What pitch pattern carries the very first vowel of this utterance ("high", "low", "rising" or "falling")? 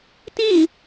falling